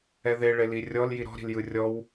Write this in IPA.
ɛðe ɭelirʲɔl jiɾɔ̤ɾi̤l jɯrʲɔw

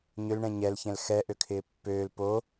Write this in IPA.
ɲʏlɳɛ̃ ɲɛlçɛ̃l xɛ ʔøkʰɪːpːøːl po

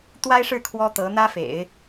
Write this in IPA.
t̪wa˥ɪ̯ʂɻ̩˥˩ kʰwɔ˥t̪ɤ˧˥ n̪ä˥fḛ˨˩˦ɪ̯

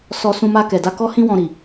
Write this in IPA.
sɔ˨ sũ˧ma˧kɛ˨da˧ kɔ˧hĩ˧wɔ̃˨ ɾi˨

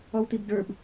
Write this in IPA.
ɔwt̪ibdə˞b

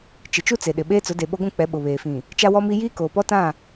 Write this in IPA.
t͡ʃɪ˨t͡ʃu˦t͡se˨ɗɪ˨ ɓeː˦t͡sʊ˨˦de˨ ɓo˦ɡʷũ˦˨k͡pɛ˨˦ ɓʊ˨βeː˨fĩ˨ | t͡ʃa˦wɔ˦mi˦ jiː˦koː˨pɔ˦tã˦˨

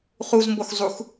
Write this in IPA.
χuzmboxzˤux

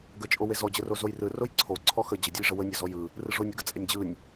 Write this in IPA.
ɡət͡ʃʼowe zɔd͡ʑəro zojrɯ rojǀʰo ǀʰɔxə d͡ʑədʲɯjʐə wənʲɔzɔ jɯ | rɯʐonʲɯɡə t͡sʼenʲd͡ʑɯnʲ

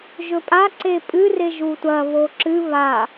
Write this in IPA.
ʒɵpʼa ǀepʼɨ reʒutʷɐ βoǁɨ βa

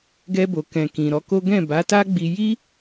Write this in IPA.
ɡɛ˧bo˨kɛ̃˨ kĩ˨ɾɔ˨˦ko˦ ɡɛ̃˦˨ba˨˦ta˦ɡ͡bi˧ ji˦

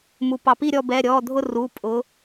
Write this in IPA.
mu˩pɑ˩˧pi˦˨ɾʲɔ˦˨ bɛ˩˧˩ɾʲɔ˩˧˩dʱʊ˦˨ ru˩˧˩ pʼʊ˩˧

